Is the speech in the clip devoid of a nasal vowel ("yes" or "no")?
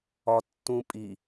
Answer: no